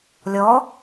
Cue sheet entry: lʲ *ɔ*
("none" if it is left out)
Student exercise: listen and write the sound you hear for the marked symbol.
ɔ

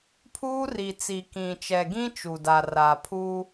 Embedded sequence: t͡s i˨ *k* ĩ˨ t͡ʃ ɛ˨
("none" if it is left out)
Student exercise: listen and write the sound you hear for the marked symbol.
k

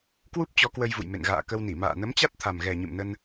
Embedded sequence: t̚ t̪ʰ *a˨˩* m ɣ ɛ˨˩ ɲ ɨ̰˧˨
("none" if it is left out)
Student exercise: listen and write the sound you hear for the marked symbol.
a˨˩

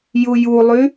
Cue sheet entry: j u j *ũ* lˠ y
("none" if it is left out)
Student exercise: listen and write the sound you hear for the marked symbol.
u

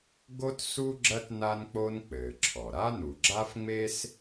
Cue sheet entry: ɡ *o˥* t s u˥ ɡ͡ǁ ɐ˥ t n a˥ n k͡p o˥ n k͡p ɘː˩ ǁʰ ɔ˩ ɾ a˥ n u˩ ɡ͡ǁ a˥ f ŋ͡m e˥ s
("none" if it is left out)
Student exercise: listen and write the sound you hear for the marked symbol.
o˥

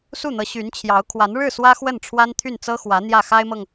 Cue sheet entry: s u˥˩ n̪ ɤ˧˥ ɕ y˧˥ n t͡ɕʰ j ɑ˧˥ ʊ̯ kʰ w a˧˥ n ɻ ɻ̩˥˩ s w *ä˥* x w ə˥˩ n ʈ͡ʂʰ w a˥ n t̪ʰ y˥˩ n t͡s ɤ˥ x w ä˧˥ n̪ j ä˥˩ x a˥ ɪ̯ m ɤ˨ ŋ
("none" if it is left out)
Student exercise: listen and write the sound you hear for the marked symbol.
ä˥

